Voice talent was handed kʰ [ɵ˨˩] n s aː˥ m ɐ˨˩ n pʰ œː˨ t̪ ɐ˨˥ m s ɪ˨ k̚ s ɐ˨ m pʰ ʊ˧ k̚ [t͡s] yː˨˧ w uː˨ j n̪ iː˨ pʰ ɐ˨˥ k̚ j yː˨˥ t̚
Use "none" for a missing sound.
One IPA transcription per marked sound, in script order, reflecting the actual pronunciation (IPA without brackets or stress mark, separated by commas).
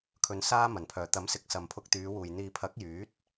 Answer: ɵ˨˧, t̪